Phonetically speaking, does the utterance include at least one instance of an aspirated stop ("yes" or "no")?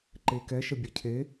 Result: yes